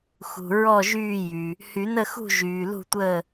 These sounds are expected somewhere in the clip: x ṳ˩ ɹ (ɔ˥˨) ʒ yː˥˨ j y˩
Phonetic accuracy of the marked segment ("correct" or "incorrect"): correct